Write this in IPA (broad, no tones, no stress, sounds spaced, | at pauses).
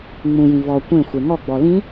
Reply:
ŋ͡m ũ j ĩ v ɔ kʷ ẽ xʷ e ŋ ɔ ɡ͡b ɔ l ĩ